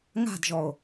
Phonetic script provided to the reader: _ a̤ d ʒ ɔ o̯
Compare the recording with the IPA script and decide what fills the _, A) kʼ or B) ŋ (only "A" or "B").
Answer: B